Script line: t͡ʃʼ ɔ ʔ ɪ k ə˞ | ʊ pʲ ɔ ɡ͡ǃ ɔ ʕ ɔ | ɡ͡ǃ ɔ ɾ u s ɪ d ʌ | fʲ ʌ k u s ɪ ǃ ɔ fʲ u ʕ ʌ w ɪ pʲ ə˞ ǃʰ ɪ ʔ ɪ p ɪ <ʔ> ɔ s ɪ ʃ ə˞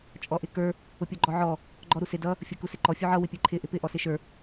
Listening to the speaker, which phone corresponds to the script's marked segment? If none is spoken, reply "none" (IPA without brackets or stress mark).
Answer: ʔ